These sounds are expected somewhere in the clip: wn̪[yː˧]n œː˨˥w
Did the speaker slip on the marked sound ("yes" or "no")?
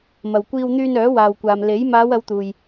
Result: no